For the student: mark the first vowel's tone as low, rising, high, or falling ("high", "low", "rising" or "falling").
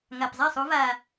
low